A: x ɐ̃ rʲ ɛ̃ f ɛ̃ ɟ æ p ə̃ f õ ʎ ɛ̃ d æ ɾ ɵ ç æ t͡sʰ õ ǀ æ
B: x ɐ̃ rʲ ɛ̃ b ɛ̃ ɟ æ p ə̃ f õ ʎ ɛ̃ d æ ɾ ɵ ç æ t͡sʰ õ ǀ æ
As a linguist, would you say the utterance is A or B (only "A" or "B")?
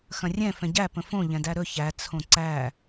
A